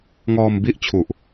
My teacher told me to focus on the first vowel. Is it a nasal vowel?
no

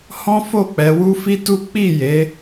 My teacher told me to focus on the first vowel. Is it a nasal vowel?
yes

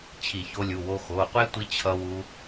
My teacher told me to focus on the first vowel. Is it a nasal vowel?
no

